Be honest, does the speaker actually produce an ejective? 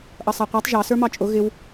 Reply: yes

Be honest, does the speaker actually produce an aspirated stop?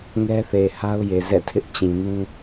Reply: yes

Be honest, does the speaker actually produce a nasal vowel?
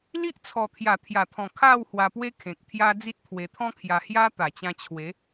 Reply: yes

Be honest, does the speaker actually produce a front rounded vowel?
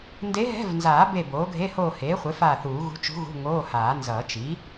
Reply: no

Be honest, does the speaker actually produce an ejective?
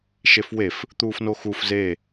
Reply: no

